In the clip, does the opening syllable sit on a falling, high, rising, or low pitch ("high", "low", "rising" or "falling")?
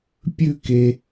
falling